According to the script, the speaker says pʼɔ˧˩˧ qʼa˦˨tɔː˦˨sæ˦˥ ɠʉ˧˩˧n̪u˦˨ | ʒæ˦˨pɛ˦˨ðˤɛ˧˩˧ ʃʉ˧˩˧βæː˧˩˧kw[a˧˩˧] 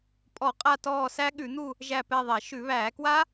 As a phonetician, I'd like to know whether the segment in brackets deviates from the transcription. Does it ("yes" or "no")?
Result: yes